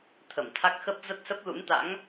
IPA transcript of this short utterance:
t̪ʰ ə˧˩ m t̪ʰ a˦˥ k̚ x ə˦˥ p̚ z ə˦˥ t̚ s ə˦˥ p̚ l ṵ˧˥ n t̪ a̰˧˥ ŋ

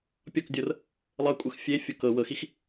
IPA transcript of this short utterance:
pʲ ɔ k dʲ ɤ r | lˠ ɤ kʷʼ ɤ x fʲ e fʲ o k ɤ w ɤ x i x

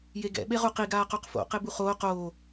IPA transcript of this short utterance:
j e ɡ ɛ̰ ɓ e ʁ u q i ɡ aː q o q f o̰ q e b u χ oː q oː

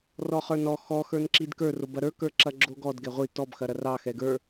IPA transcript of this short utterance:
r ɔ χ ə˞ n ɔ x ɔ x ə˞ n ǁ i d k ə˞ r o b ɐ ɾ ə˞ k ə˞ ǁ ɐ ɡ͡ǁ o ɡ ɔ d ɡ ɛ ʁʷ i t ɔ b x ɐ ɾ ɐ r ɑ x ɛ ɡ ə˞

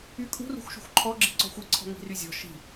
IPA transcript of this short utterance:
y kʼ ṳ r ṳ x ʃ ṳ xʷ ǃʰ ɔ ɡ͡ǁ i ǀ ɔ̤ xʷ i ǀʰ ɔ̤ ŋ i̤ r y zʲ ɔ̤ ʃ i̤

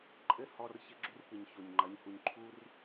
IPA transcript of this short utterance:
ǃʼ ɘ˦ h ɔ˦ r ç ɘ˧ ɡ͡ǁ u˧ r p ɨ˨ ɲ ç o˨ ɲ ŋ͡ǃ ɐ˨˦ ɲ h u˧ ɲ ǃʰ u˦ r

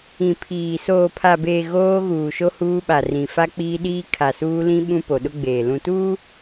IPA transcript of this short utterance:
ĩ˨ pʰ iː˨ s oː˨ pʰ a˨ b eː˨ ɣ oː˦ ɣ uː˨ ʃ o˦ h uː˦ ɓ a˨ r ĩ˨ f a˦ k͡p iː˦ ɗ iː˦ kʰ a˨ s uː˦ l ĩ˦ ɓ ũ˦ p o˨ ɗ ʊ˦ ɡ͡b eː˨ l ũ˨ t uː˦

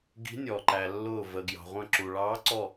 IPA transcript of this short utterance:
ɡ i̤˨˦ nʲ ɔ˩ ǃ æ˩ lː ʊː˧˩ v ə˩ ɡ j ɑ̤˩ ʁʷ ə̃˧˩ ǁ u˩ ɭ ɑː˨˦ ǀ ɔ˧˩

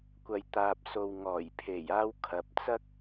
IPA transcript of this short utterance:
kʷ ɐ˨ j t̪ aː˨ p̚ s o˨ w ŋ ɔː˨˩ j pʰ e˨˩ j aː˧ w kʰ ɐ˨ p̚ t͡s ɐ˥ k̚

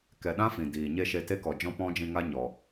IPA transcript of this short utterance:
k ɛ˨ ɗ ã˦ f ĩ˨ d iː˨ ɲ e˦ ʃ e˧ t e˦ k ɔ˨ d͡ʒ ɔ̃˦ p ɔ̃˦ d͡ʒ ĩ˧ ŋ a˦ ɲ ɔ˨

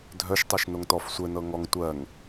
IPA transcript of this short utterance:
dʱ œ ʃ tˤ ɜ ʃ n o ŋ t ɔ f sʷ ɘ n ɤ ŋ ɔ ŋ tʷ ɜ ŋ

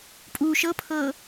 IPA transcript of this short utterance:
pʼ u ʃ ɤ pʰ ɤ

